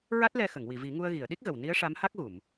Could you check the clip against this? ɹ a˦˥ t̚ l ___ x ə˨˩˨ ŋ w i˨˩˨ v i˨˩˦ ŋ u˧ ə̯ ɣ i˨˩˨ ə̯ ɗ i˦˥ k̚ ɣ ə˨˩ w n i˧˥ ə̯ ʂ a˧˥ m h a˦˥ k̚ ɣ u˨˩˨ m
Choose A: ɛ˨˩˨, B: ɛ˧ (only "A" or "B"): B